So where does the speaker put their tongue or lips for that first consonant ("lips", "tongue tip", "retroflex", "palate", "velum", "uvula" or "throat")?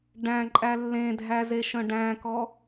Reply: retroflex